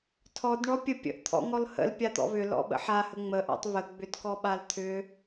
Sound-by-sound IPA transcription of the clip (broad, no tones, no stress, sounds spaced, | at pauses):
tʰ ɔ d ɳ ɔ pʲ ə pʲ ə̰ ʔ t̪ʰ ɔ̰ ŋ ɔ l h ə̰ l pʲ a t̪ ɔ̰ β ʏ l ɔ̰ ɓ ə̰ ħ a h ə ŋ͡m ə ʔ ɔ̰ tˤ β ə ɡ͡b ʏ d k ɔ ɓ a l t̪ʰ ʏ